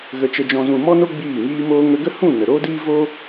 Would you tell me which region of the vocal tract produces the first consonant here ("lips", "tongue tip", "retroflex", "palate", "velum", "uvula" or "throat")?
velum